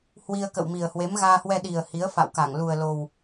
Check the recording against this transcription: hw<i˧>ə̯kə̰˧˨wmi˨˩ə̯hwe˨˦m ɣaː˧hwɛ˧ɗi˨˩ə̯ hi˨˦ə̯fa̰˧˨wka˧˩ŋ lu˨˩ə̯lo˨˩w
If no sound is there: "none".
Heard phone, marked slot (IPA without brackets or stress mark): i˧